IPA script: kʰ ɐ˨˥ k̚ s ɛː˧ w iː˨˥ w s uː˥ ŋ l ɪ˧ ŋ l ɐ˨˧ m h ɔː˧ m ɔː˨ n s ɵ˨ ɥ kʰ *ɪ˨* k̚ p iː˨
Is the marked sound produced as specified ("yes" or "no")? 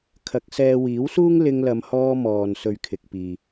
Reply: yes